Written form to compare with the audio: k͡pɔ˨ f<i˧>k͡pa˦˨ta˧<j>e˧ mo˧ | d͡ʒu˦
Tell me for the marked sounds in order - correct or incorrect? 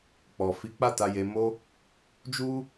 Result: incorrect, correct

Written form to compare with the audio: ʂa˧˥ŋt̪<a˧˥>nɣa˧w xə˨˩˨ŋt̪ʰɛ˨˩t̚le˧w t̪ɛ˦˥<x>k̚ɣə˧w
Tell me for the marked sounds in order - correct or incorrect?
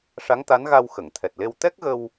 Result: correct, incorrect

